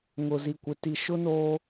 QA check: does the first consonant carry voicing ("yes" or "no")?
yes